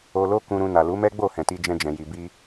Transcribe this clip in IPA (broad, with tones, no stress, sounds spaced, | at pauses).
o˧ l o˦ k ũ˧ ɾ ũ˧ n a˨ l u˨˦ m ɛ˦ ɡ͡b o˦˨ h ɛ̃˨ t i˧ d͡ʒ ɛ̃˧ d͡ʒ ɛ̃˨ j i˨ b i˧